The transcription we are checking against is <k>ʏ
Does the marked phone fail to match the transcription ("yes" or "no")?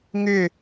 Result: yes